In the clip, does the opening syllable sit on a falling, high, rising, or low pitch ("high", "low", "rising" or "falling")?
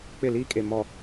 falling